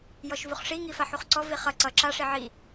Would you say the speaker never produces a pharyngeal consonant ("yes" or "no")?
no